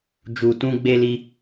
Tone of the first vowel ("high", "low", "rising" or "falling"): low